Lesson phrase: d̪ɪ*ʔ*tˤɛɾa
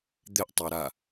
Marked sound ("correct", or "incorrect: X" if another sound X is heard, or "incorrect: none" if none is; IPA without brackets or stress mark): correct